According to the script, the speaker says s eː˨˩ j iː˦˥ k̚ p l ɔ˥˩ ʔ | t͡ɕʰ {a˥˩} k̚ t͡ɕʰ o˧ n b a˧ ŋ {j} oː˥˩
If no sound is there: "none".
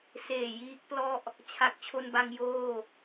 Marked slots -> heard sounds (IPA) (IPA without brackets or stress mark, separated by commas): a˨˩, j